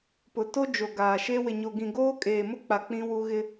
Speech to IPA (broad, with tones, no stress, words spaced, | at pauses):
pʊ˨to˦ d͡ʒo˨ɡaː˨ʃe˦ wɪ˨ɲo˨ɡĩ˨ ɡoː˦kʼeː˨mʊ˦k͡pa˨ k͡pĩ˦wu˦ ɣɪ˦